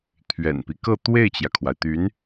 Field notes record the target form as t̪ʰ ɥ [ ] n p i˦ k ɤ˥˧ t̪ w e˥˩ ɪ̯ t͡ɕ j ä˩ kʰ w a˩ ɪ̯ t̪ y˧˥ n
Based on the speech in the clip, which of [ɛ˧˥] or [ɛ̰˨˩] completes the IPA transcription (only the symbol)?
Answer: ɛ̰˨˩